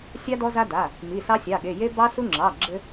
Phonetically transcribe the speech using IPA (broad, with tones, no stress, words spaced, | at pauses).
sʲɑ˦ dɔ˦za˦da˩˧˩ | mi˩˧˩sɑ˦sʲɑ˩˧˩ɠe˩˧˩ je˦ bɑ˦su˦ŋ͡ǁɑ˩˧˩ ɡ͡ǁɘ˦